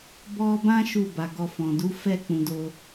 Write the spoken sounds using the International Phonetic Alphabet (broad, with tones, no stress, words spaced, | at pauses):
bɔ˧bã˦ ʃu˦˨ba˨ ɡɔ˧fɔ̃˨ du˨˦fɛ˦˨k͡pũ˨ do˧